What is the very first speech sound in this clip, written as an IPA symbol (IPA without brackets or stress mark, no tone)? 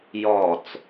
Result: j